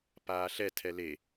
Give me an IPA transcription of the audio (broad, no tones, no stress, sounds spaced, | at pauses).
p aː ɬ ɛ tʰ ɛ l e